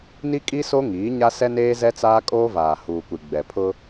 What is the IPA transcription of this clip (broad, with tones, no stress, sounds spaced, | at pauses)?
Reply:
n i˦ kʼ i˦ s o˦ ŋ iː˨˦ ɲ a˦ s ɛ˦ n eː˦ z ɛ˦ t͡s aː˦ kʼ oː˦ v aː˨ h uː˨ kʷ i˨ ɡ͡b ɛ˨ pʰ ʊ˦